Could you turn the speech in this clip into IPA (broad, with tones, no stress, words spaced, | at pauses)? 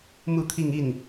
mu˥˧t̪ʰi˥˧ŋ i˥˩n